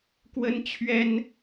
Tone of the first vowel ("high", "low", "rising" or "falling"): high